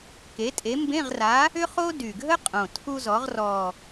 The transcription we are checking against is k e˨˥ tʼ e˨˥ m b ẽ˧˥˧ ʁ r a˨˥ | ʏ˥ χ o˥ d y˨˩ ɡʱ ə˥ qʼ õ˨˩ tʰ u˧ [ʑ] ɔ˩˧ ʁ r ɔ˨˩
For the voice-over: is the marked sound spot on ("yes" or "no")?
no